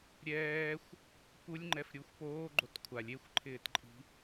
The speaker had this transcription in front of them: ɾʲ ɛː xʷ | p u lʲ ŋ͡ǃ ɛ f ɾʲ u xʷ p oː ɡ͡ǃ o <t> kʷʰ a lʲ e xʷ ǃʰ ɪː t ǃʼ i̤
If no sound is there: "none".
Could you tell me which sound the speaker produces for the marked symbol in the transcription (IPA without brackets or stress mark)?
t